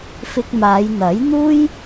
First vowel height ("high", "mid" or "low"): high